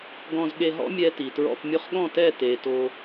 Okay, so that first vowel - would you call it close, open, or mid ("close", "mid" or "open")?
mid